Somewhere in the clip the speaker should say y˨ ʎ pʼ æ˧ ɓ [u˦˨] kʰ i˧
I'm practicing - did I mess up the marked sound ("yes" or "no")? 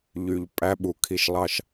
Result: yes